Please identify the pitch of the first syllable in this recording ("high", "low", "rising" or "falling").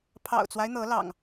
low